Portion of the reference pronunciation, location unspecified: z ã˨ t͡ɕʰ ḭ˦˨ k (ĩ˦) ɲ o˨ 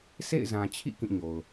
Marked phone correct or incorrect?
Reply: incorrect